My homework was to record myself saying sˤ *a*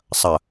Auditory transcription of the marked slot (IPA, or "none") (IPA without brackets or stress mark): ɐ